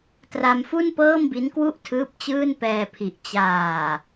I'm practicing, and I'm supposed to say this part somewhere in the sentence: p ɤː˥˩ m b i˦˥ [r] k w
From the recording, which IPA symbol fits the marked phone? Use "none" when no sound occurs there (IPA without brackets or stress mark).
n